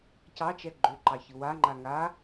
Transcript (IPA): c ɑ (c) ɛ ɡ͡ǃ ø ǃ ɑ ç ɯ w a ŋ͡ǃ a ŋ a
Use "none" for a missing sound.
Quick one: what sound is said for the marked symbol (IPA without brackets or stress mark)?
t͡ʃ